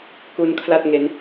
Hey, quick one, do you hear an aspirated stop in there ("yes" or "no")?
yes